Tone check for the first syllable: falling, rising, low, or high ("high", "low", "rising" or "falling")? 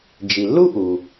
low